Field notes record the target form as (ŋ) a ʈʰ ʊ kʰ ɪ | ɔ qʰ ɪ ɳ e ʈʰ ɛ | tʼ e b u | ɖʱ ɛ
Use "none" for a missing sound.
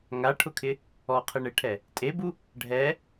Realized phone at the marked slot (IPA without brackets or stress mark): ŋ